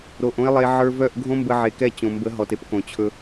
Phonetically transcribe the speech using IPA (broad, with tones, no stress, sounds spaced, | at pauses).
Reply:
ɾ o˨ ʔ õ˦ ɪ̯ lˠ e˧ ʕ ə˞˧ v œ˦˨ ʔ ɡʱ õ˦ m b ə˧ ʕ e˨ k ɛ˦˨ t͡ɕ õ˨ m b ə˨˦ ɦ ɔ˨ t e˦ p k õ˨ t͡ɕʰ ɵ˧